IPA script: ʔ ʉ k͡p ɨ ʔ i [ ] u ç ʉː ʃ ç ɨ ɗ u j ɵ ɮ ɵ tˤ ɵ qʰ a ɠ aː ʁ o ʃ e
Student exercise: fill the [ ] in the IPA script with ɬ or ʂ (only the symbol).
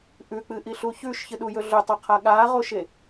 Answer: ɬ